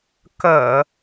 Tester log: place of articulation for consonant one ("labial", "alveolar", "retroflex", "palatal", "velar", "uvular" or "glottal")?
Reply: velar